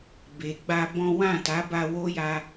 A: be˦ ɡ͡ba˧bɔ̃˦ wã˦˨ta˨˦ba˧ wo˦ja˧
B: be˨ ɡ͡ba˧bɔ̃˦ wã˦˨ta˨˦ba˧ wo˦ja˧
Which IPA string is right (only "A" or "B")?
B